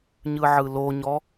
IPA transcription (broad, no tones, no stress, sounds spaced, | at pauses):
ɲ ɯ ʕ ɯ l o ɲ ɔ